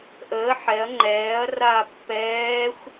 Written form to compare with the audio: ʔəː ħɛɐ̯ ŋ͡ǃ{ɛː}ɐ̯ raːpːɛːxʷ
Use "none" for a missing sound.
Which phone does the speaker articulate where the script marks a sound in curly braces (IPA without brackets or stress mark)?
ɛː